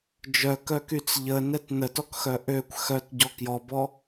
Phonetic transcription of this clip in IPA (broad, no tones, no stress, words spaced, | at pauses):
d͡ʒœkœkyt͡s ʎənɛt nətɔkxœ ʔøkʷ xœtɟɔ kjɔbɔ